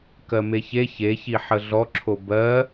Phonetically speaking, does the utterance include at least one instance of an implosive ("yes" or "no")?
no